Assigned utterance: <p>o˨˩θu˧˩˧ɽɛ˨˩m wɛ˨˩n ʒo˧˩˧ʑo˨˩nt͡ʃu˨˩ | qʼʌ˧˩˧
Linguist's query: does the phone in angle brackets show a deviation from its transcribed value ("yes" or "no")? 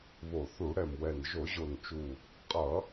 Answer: yes